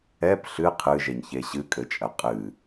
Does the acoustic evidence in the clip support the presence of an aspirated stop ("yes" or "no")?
yes